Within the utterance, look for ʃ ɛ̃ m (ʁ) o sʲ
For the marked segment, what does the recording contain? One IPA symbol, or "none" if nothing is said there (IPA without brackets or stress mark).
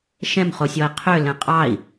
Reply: χ